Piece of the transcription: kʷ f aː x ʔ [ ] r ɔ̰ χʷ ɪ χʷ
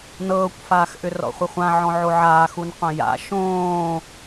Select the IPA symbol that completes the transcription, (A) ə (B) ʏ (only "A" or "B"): B